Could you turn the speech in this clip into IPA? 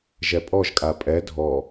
ʒ ɛ pʼ ɔ ʒ kʼ a pʼ ɛ dʱ ɔ

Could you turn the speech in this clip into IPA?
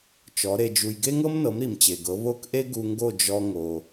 t͡ʃ ɔ˩˥ ɾ e˧ d͡ʒ u˧ j ɡ e˥ ŋ ɤ˥ m n ɤ˩˥ m ɾ i˩ m t͡ɕ e˩ ɡ ɤ˩˥ β o˥˩ k ʔ e˥ ɡ u˧ ŋ ɡ o˥˩ d͡ʒ ɔ˧ ŋ o˩

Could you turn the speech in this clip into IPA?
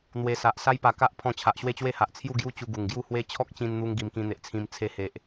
n̪ w e˧ s a˨ ʔ s a˦ j p a˨˩ k a˦ ʔ pʰ ɔ̃˧ t͡ɕʰ a˨ ʔ ɕ w e˥˧ t͡ɕ w e˥˧ h a˨ ʔ t͡sʰ j u˥˧ ɡ j u˦ t͡ɕ u˧ ɡ u˨˩ ŋ ɡ j u˥˧ h w e˦ t͡ɕʰ ɔ˦ k̚ t͡ɕ ĩ˧ n n̪ u˧ ŋ ɡ i˧ m k ĩ˧ n̪ e˨ ʔ t͡sʰ ĩ˧ m t͡sʰ e˧ h e˨ ʔ

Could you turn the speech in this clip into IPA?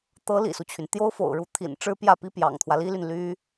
t̪ ɤ˧˥ l ḭ˨˩ s u˦ t͡ɕʰ y˩ n t̪ j o˥ ʊ̯ f o̰˨˩ ʊ̯ ɻ u˧˥ t̪ʰ ḭ˨˩ n ʈ͡ʂ ɻ̩˥ p j ä˥˩ p i˥ p j ɑ̰˨˩ ŋ t̪ʰ w ä˦ l i˥ l y˨ n l y˥

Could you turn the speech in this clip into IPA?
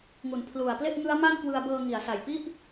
ŋ u˩˦ n pʰ l u˨˩ a̯ p l e˥˩ ʔ ŋ ɯ˦˥ a̯ m a˥˩ n k w ɯ˧ a̯ b ɤː˧ ŋ i˩˦ a̯ s a˨˩ j p i˥˩ ʔ

